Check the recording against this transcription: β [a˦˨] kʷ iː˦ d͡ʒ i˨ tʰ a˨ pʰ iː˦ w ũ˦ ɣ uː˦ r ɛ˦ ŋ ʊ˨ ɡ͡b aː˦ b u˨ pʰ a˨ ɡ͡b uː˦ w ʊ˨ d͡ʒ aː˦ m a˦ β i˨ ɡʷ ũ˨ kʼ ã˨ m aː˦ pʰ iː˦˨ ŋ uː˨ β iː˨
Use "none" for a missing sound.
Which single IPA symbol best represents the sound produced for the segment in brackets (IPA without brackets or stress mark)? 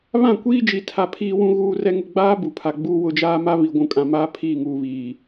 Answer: ã˦˨